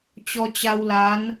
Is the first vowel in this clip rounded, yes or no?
yes